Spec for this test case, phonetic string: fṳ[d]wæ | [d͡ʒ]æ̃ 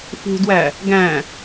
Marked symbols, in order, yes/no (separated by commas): yes, no